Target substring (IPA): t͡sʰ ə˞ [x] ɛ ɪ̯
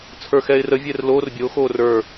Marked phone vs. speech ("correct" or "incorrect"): correct